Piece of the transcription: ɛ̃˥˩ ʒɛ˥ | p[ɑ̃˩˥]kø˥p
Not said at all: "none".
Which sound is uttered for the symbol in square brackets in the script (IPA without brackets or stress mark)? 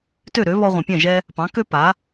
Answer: ɑ̃˩˥